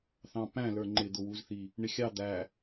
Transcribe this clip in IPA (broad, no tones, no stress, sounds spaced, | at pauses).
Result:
θ ɑ̃ p æ̃ l ə˞ ŋ͡ǃ ɪ d̪ ʊ w u z θ i | ɳ ɪ xʲ ɑ d̪ æ